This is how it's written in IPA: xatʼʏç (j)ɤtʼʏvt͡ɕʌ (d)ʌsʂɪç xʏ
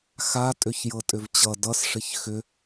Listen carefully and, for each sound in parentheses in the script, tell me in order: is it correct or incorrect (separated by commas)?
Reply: correct, correct